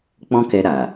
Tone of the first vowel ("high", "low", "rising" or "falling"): high